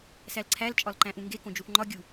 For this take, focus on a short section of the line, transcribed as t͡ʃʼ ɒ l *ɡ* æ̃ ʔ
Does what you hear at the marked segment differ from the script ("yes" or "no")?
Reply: yes